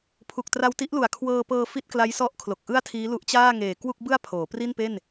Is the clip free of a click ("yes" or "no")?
yes